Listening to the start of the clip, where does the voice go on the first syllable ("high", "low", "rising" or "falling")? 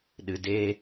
low